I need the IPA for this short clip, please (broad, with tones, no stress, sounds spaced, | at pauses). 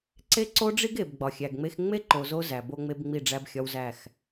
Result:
ǀ e˦ ǀ o˦ ɖ͡ʐ i˦ ɡ e˨ b ɡ͡b ɒ˨ xʲ æ˨ ɡ ŋ͡m e˦ x ŋ͡m e˦ ǃ o˨ z o˦ z æ˨ b o˦ ŋ͡m e˦ b ŋ͡m i˦˨ ɖ͡ʐ æ˦ b xʲ ɒ˦ w z æ˦˨ x